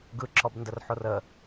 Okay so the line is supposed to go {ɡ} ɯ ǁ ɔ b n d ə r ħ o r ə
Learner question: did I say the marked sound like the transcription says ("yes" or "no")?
yes